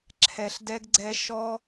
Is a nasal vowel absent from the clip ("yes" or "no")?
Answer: yes